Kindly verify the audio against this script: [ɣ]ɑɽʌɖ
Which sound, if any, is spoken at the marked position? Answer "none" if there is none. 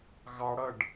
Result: ɣ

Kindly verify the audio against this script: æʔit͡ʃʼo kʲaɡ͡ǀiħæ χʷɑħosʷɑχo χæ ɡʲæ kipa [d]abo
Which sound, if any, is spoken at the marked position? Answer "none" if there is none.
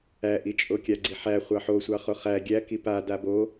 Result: d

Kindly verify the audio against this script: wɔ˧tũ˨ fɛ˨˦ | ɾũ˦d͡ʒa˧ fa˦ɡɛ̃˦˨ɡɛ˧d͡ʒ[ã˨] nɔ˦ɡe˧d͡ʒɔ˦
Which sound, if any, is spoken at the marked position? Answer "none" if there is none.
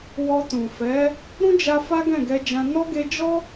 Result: ã˧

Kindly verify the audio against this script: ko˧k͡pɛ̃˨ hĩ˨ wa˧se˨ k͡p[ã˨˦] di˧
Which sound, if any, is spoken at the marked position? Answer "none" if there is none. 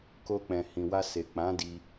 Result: ã˨˦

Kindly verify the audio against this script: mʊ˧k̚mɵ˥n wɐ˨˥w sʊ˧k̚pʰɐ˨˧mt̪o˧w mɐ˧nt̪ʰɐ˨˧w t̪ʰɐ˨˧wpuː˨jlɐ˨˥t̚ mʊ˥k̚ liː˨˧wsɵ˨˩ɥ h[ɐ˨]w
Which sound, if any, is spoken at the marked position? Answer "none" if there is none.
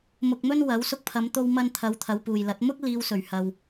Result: ɐ˨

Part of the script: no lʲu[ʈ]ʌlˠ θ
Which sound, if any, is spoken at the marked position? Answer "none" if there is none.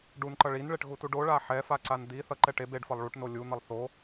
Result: n̪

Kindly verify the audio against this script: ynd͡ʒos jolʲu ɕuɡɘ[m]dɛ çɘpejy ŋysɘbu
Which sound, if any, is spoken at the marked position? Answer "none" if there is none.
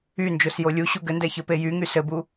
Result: n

